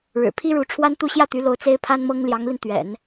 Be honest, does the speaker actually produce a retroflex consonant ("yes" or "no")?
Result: yes